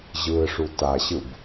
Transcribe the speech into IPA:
ʑɯːʂutaɕɯb

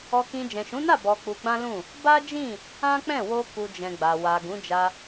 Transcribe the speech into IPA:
ɔ˧kĩ˧ d͡ʒɛ̃˨ʃũ˨˦na˦˨ bɔ˧k͡pu˧ɡ͡bã˦ lũ˦˨ | ba˦d͡ʒĩ˦˨ | ã˦k͡pɛ̃˦˨wo˧ ku˨d͡ʒɛ̃˨ ɡ͡ba˨wa˨ ɡũ˨˦d͡ʒa˧

